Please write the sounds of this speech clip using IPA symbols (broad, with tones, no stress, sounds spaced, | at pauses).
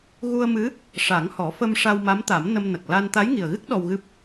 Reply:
ɣ u˧ ə̯ m ɨ˧˥ | ʂ a˨˩˦ ŋ h ɔ˨˩˦ f ə˧ m ʂ a˧ w m a˧˥ m t̪ a˨˩˦ m n ə˧ m n ə˨˩ k̚ l a˧ n t̪ a˧˥ j ŋ i˨˩ ə̯ ɣ ɨ˦˥ k̚ ɗ ɔ˧ w ɣ ɨ˦˥ p̚